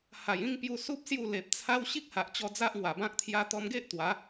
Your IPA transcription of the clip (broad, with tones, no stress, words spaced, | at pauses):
ha˨˩jĩ˥˧ŋ pju˧su˦p̚ sju˥˧le˨p̚ t͡sʰa˦w ɕi˦k̚ha˨ʔt͡ɕɔ˧ d͡za˦ʔŋwa˨˩bã˦k̚ t̪ʰja˧t̪ɔ˧mɡe˦ʔ t̪wa˨˦